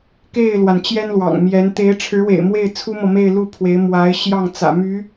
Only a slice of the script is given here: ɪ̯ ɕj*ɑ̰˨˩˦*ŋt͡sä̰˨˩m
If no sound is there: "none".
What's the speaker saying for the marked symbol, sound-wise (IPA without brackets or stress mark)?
ɑ˥˩